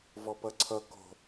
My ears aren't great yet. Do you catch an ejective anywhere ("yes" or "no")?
no